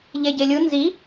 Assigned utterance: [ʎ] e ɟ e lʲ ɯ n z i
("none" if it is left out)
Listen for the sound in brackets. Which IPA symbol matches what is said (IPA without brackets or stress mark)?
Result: ʎ